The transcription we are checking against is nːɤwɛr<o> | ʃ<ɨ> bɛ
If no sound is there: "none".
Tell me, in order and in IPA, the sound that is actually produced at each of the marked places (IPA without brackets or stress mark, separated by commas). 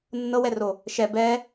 o, ɛ